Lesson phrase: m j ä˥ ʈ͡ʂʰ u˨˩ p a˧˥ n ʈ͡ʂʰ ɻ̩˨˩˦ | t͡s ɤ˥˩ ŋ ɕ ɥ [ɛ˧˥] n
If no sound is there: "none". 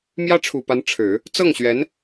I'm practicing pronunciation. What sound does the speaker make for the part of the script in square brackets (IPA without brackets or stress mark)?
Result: ɛ˧˥